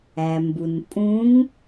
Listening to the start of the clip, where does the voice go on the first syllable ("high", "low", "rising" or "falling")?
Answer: low